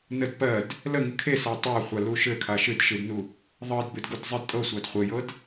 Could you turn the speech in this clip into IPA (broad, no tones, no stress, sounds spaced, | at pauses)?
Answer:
n ə d p ɜ d | l ə ŋ ɨ kʰ e s a tˤ a χʷ a l u ʃ ɘ kʰ a ʃ ɨ d ʃ ɨ d n u | ðˤ ɤ d b ɨ d ɡ u d zˤ ɨ d tʼ ɤ sʷ a d χʷ ɘ j ɤ d